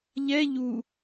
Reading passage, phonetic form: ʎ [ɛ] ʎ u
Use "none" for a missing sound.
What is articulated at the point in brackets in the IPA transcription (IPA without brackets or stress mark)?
ɛ